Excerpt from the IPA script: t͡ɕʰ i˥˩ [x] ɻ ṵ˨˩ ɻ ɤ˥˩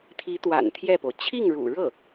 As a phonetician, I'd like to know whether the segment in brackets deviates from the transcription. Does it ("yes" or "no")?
yes